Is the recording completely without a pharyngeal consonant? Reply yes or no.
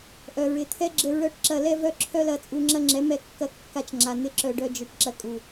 yes